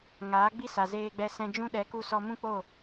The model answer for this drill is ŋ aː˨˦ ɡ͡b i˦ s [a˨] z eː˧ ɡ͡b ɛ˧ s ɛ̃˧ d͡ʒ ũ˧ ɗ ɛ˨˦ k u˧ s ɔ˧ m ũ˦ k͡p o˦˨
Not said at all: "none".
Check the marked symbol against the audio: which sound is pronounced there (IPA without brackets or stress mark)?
a˨